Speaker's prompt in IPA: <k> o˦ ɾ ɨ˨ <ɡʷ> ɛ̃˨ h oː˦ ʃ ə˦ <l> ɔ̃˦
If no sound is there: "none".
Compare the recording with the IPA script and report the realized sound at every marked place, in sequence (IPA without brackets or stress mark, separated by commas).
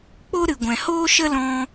k͡p, ɡʷ, l